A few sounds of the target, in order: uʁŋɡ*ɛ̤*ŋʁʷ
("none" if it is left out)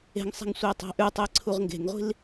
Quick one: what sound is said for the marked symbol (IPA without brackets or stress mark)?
e̤